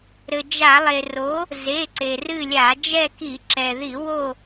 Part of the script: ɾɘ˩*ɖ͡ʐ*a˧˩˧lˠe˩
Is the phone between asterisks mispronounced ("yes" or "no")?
yes